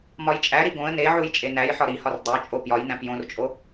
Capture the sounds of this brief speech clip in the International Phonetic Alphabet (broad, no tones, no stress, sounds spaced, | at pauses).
m ɒ j t͡ʃʼ æ ɾ i ɡ õ ə̯ n e ʕ u j t͡ʃʼ e n æ j ħ ɒ ɾ i h ɒ r dˤ o t͡ʃʼ o p j ɒ j n æ̃ p j õ r t͡ʃʼ o